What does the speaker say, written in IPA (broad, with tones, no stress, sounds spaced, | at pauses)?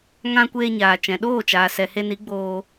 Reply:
ŋ ã˧ kʷ eː˧ ɲ aː˨ t͡ʃ ɛ̃˨ ɗ oː˦˨ t͡ʃ aː˨ s ɛ˨ h e˧ n i˨˦ ɡ͡b oː˧